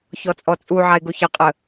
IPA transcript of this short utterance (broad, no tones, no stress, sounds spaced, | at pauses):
ç ɔ t͡sʼ ɔ t͡sʼ u ʕ a ɪ̯ ɡ o ç ɐ qʼ ə